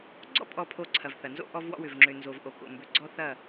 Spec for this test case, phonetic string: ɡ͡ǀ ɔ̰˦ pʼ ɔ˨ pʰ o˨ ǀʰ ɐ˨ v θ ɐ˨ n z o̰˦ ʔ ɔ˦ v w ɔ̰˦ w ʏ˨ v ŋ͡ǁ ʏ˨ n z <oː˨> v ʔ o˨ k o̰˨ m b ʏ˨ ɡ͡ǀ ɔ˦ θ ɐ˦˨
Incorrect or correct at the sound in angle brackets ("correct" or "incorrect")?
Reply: incorrect